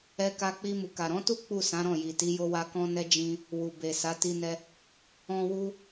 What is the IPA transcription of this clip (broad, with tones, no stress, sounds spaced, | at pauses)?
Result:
ɛ˧ k a˧ k͡p i˧ m u˨ k a˨ ɾ ɔ̃˨˦ t u˦ k͡p u˦˨ s ã˨˦ ɾ ɔ̃˦˨ j i˨ t i˨˦ j o˧ w a˧ k ɔ̃˦ n ɛ˦ d͡ʒ ĩ˧ | w u˨ b e˨ s a˨˦ t i˧ n ɛ˧ | ɔ̃˦ w u˦